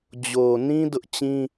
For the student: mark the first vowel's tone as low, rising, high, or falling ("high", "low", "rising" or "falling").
low